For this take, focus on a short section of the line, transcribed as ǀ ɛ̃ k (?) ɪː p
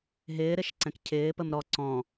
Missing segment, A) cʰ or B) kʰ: A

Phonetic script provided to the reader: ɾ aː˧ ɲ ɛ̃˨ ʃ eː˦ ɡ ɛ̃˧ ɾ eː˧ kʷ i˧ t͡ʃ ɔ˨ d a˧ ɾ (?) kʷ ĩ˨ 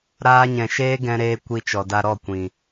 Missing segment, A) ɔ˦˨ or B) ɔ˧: A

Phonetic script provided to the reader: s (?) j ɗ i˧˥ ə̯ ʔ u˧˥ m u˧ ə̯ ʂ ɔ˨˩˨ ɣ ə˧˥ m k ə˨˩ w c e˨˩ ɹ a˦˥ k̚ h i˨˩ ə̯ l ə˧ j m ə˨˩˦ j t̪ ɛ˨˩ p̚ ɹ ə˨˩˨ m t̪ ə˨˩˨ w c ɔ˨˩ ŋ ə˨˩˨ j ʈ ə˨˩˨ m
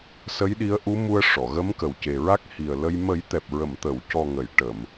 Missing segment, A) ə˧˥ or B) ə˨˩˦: A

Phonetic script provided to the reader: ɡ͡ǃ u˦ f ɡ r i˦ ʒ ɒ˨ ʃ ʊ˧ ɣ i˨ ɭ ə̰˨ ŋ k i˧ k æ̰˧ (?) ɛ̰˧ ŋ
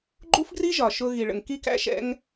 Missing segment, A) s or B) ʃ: B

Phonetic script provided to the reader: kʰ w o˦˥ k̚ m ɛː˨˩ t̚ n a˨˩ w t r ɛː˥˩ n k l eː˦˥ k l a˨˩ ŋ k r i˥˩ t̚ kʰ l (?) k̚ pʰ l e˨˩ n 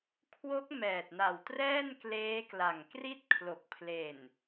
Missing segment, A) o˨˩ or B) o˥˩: A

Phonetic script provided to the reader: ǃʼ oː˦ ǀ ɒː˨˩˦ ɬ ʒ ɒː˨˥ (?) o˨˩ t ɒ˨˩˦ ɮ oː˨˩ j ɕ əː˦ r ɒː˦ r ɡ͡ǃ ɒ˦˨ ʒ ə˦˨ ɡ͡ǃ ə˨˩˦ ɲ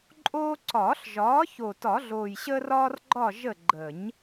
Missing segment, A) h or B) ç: B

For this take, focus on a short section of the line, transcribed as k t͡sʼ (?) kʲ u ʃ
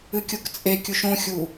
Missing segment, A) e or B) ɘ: A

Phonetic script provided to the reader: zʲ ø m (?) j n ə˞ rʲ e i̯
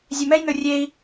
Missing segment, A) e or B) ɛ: B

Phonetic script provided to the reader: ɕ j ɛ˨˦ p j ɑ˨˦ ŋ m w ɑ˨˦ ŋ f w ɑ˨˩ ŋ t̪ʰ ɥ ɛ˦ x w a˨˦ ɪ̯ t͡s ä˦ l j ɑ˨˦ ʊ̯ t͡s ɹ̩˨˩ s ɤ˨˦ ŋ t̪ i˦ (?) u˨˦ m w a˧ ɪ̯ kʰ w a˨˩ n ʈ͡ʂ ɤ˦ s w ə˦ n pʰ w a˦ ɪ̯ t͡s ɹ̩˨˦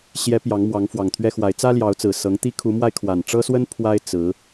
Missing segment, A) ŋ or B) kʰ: B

